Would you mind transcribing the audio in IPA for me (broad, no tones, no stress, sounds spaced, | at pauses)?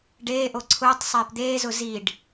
ɖ eː ʔ o ǀʰ ʊː tˤ sˤ eː p d̪ eː z ʊ z i ɖ